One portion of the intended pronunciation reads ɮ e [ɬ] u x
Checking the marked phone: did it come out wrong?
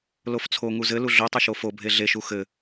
yes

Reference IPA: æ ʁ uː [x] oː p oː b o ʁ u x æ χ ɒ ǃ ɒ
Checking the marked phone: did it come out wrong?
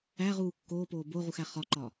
yes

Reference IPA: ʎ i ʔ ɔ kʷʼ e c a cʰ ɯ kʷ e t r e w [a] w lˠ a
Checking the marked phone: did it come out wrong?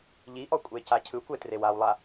no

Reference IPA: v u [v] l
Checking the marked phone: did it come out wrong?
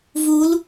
yes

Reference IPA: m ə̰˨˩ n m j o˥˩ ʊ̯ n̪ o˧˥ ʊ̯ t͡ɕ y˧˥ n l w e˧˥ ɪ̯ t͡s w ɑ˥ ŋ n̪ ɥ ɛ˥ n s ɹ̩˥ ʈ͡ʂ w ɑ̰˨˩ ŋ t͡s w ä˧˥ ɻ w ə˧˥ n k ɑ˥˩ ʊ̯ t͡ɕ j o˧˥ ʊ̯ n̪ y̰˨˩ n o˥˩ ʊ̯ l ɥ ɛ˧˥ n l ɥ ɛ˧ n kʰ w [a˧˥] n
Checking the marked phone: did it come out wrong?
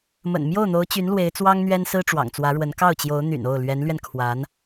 no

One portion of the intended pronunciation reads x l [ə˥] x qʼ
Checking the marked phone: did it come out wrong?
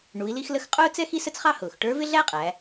yes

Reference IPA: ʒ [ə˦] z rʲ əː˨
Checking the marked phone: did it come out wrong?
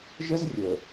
no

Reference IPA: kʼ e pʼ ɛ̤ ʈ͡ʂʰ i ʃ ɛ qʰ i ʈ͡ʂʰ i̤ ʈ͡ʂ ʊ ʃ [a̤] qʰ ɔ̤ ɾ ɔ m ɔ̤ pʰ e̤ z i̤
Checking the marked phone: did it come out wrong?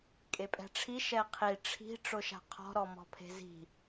no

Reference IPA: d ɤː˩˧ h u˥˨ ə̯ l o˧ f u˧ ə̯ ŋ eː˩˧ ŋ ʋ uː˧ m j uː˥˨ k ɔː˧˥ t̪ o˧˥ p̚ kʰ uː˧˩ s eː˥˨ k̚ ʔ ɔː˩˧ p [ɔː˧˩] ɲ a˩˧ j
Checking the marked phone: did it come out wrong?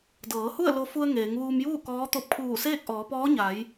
yes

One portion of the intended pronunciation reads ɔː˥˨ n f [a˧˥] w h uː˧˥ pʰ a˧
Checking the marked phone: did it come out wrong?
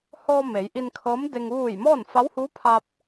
no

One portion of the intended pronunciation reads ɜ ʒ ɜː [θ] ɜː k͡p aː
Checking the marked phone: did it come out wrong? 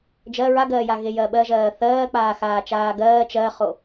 no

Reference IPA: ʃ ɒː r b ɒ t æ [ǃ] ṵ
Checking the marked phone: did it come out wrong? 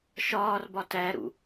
yes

